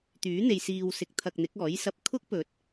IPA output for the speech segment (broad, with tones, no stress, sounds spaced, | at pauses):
t̪ yː˨˥ n̪ e˨ j s iː˨ w s ɪ˨˥ k̚ t̪ʰ ɐ˧ k̚ n̪ ɪ˨˥ k̚ ɔː˨˥ j s ɐ˨ p̚ kʰ ʊ˥ k̚ p ɵ˨ t̚